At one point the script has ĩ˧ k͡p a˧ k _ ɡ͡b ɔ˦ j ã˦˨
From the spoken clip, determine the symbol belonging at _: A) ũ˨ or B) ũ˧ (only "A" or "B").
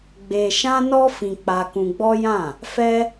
B